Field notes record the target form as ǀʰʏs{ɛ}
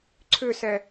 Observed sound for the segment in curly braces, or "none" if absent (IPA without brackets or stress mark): ɛ